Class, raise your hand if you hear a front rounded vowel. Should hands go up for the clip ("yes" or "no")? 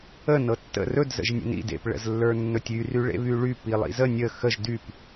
yes